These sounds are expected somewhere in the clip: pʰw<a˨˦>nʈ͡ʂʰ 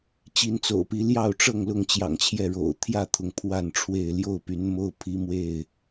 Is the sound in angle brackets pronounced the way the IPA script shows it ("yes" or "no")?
no